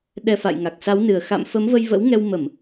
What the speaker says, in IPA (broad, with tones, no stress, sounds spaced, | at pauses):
ɗ ɛ˨˩ f a̰˧˨ j ŋ a˨˩ k̚ s a˨˦ w n ɨ˨˩ ə̯ x a̰˧˨ m f ə˨˦ m v ə˧ j v ə̰˧˥ w ŋ ɛ˧ w m ə˧˩˨ m